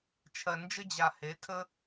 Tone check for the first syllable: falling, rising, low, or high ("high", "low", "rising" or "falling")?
low